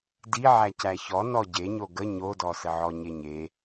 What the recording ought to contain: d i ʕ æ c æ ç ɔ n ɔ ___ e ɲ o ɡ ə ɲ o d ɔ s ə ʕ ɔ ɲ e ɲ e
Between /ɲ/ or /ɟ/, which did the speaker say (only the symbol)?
ɟ